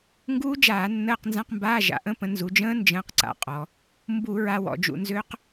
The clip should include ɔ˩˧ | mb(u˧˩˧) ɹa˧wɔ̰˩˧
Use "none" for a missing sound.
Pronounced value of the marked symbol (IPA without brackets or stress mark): u˧˩˧